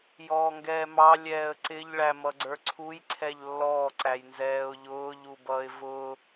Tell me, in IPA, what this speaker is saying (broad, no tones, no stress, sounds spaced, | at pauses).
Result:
j ɔː ŋ ɡ ɛː m ɑ lʲ ɛː ə̯ ǀ ɪ ʎ ɭ æ m ʌ ɡ͡ǀ ə˞ ǀʰ u j ǀʰ ɛ ʎ lː ɔː ǀ æ j n z ɛː ʊ̯ ʎ ʊː ʎ u b ʌː ɪ̯ v ʊː